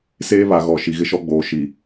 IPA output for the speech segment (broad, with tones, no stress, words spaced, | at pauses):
seː˦βa˨ ɣɔ˨ʃi˨ ɣɪ˦ʃɔ˦ɡ͡boː˨˦ ʃi˨